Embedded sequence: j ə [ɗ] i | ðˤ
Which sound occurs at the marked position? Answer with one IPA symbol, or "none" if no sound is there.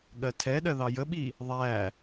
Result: ɓ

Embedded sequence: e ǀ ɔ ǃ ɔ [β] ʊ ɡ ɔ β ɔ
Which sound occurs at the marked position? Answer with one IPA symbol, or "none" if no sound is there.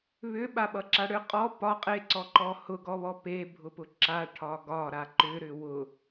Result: h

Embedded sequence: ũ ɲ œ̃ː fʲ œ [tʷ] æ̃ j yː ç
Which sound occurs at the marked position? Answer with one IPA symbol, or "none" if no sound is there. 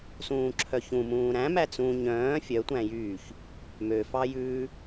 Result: tʷ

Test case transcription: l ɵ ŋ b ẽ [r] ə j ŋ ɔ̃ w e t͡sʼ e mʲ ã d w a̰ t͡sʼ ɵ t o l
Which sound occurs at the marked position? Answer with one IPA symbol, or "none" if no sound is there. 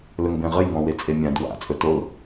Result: ʁ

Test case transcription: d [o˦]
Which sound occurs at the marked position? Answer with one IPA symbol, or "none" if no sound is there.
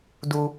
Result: u˦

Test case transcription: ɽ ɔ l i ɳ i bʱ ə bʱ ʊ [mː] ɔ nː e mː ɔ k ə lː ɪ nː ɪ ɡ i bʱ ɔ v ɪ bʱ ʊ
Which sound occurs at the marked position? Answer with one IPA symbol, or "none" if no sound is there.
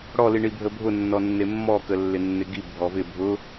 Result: nː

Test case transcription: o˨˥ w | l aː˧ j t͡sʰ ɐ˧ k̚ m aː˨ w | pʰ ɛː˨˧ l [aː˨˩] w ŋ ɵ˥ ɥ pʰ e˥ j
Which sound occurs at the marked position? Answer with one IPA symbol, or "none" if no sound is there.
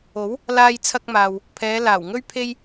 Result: aː˨˩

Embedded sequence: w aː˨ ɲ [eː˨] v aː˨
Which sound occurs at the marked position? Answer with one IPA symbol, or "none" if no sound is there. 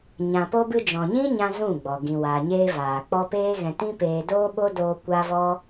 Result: eː˧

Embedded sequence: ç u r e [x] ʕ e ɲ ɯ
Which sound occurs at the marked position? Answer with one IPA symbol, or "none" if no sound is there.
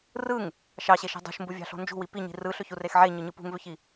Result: x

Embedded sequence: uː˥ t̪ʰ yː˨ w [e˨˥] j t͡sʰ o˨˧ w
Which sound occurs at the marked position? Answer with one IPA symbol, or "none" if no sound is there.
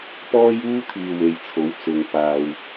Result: e˨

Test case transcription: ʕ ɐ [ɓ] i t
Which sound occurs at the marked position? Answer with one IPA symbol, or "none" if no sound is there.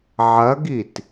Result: ɡ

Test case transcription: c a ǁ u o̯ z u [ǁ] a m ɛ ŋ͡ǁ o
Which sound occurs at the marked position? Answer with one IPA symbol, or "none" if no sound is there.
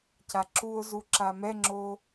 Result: ǁ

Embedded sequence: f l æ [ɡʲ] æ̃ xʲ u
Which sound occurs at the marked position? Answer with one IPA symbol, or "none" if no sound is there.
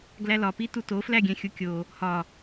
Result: ɡʲ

